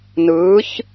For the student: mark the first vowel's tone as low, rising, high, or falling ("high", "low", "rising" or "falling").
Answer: rising